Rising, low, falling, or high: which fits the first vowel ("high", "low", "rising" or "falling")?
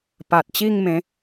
low